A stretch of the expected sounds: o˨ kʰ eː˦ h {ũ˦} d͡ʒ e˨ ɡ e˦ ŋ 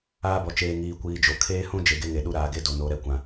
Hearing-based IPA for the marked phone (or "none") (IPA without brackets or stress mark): ũ˦